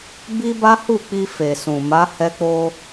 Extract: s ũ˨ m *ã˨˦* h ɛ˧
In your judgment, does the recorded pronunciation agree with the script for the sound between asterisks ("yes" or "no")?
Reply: no